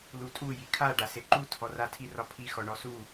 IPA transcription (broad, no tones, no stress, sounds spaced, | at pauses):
l u tʼ u j i kʰ a ɖ a s e ǃ u tʰ ɔ r a tʰ i r ɒ pʰ i x ɔ ɳ ɔ s u